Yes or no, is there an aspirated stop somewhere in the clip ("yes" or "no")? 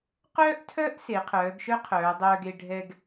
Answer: yes